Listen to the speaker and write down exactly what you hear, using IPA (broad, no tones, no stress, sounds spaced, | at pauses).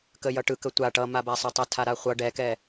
k ə j ʌ ʈ ɯ k ə tʷ a ʈ ʌ m a b a sˤ ø tˤ o tʰ a ɾ a χʷ ʌ ɖ ɛ k ɛ